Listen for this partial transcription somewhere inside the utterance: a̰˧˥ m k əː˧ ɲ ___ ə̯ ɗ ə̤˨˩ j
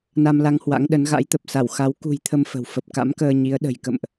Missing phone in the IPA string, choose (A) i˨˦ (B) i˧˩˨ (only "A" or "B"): A